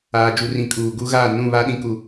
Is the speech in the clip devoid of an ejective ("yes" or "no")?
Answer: no